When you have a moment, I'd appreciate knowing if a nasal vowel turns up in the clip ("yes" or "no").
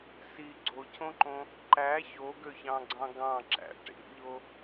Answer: yes